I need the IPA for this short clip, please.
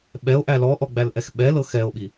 ɓɛo̯ʔæ lɔʔɔ ɡ͡bælʔɛxɓɛlɤ xɛo̯ɓi

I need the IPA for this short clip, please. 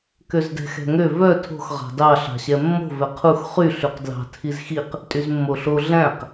køzdɛ̤xɛ̤ŋø vœ tʰo̤x ʁɑ̤dɑ ɬɑ̤ɕɛmːo̤ vɛqʰux χy ɬyqdlɑ̤ tʰizxiq | tʼyzmːoɬo ɮæ̃q

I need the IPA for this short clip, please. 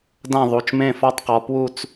dã˥˨ðˤu˩˧˩t͡ʃmẽ˥˨ fɔ˥˨tˤqɔ˩˧ pwu˥˨t͡s

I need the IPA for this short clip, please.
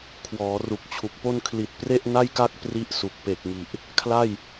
kʰwɔː˩˦ru˨˩k̚t͡ɕʰu˨˩k̚po˥˩n kʰli˨˩t̚pre˥˩ʔ na˥˩jka˥˩k̚ pri˥˩ʔsu˨˩k̚ pe˨˩k̚ŋi˨˩ʔ | kʰla˥˩j

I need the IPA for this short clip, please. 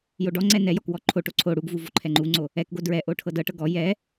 joɖɔŋ͡ǀɛ nɛjɔk wɔǃʰoʈo ǀʰo ɽuɡvu voǃʰɛŋ͡ǃuŋ͡ǀo | ɛkɡo dɹɛ ʔoʈʰɤdɤʈɤ ɡɔ jɛ

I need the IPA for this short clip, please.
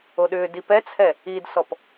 oɗʏːdi pɛt͡sʰɛ | idsɔp

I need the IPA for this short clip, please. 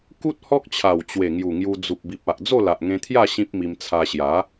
ku˦t̚ hɔ˦k̚t͡ɕʰa˨˩w t͡ɕwe˨˩ŋju˨˩ŋju˧ d͡zu˨p̚bi˨p̚a˨ʔ d͡zo˥˧la˨ʔŋẽ˧t̪ʰja˥˧ ɕĩ˦p̚mi˧mt͡sʰa˧ ɕja˨˦

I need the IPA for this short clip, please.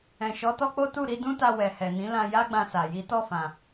ɛ̃˨ʃɔ˨˦tɔ˦k͡po˦ tu˦˨ɾi˨˦dũ˦ta˧ wɛ˨hɛ˨nĩ˨˦lã˧ ja˦ɡ͡bã˧sa˨ ji˨˦tɔ˦˨fã˨

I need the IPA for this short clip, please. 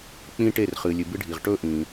k͡pĩ˧ ʈe˧˩rχɨ˩ lʲɨ˩ bɨ˧ɖʱi˩ʁ ʈɵ˧ʔĩ˩

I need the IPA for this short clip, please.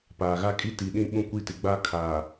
paː˨ɣa˦kʼi˦ ti˨ɗĩ˦ ɓũ˦kʷi˦tɪ˨ ɡ͡ba˦kʰaː˨

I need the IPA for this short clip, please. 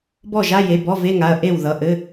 bɔ˥˩ʒa˧˥˧je˩˧˩ bɔ˧˥˧ve˧˥˧ŋa˩˧˩ɐ̯ ʔe˥˩w ðʌ˩˧˩ʔɘ˧˥˧

